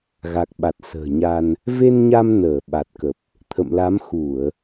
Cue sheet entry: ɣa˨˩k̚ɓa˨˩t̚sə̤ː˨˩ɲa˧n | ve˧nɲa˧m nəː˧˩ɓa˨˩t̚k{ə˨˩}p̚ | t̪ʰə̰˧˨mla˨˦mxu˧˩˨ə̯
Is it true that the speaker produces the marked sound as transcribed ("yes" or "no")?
yes